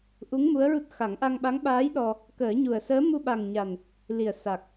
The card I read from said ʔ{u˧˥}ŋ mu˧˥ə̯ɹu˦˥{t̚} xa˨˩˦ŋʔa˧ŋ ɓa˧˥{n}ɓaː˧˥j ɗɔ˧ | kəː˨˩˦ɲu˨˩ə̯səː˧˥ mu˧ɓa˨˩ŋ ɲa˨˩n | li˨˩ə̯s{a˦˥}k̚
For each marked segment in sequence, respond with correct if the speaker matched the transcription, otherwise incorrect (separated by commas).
correct, correct, incorrect, incorrect